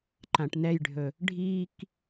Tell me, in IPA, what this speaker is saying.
ǃ ã ʈ n ɛ j ɖʱ ɵ | ɖʱ i k

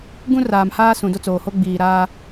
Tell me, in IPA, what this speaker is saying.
ɡ ũ˦ r aː˨ m h aː˦ s ũ˨ d o˦ t͡s oː˨ h o˦ ɡ͡b iː˨ ɾ aː˦

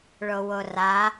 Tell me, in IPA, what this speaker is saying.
ɭ o w o r a

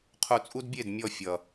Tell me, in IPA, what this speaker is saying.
qʰ u˧ t͡sʼ u˦ d bʲ e˦˨ d mʲ ɔ˦˨ fʲ ʌ˨

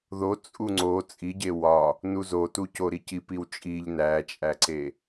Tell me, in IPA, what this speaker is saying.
ð o t͡sʼ u ŋ͡ǀ o t͡sʼ i ɟ e w ɒ | n u z o t u c o ɾ i c i p i w t͡ʃʼ i ʎ n æ t͡ʃʼ æ ǀ e

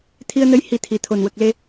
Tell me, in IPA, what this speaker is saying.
t̪ʰ i˧ ə̯ n ə˧˥ j h i˧ t̪ʰ i˨˩ t̪ʰ o˨˩ n w ə˨˩ k̚ l e˧

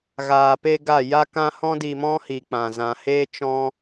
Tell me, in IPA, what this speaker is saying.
ɣ aː˨ p e˧ ɡ a˦˨ j a˦ k ã˦ h ɔ̃˦ d i˧ m ɔ̃˦ h i˨ k͡p ã˨ z ã˧ h eː˦ t͡ʃ ɔ̃˦

